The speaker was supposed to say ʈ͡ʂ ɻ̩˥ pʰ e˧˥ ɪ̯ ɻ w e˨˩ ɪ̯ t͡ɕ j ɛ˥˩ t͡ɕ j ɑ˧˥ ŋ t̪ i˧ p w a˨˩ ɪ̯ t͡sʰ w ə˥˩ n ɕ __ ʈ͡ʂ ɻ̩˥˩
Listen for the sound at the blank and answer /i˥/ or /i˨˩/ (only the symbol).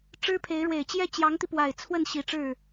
i˨˩